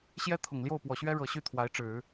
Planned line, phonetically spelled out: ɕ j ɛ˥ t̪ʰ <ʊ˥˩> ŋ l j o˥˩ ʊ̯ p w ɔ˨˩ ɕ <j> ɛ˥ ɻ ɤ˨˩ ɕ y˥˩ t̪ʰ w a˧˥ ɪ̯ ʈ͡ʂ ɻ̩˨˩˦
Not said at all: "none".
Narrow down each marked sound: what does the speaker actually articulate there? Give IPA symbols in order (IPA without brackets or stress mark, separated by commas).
ʊ˨˩, ɥ